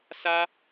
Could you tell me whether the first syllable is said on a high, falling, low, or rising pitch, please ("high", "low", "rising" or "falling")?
high